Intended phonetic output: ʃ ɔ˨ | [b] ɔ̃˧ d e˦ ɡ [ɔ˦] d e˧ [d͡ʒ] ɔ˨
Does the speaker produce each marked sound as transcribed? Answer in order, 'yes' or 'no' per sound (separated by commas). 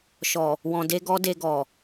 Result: no, yes, no